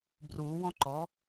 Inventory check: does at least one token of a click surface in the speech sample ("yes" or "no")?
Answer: yes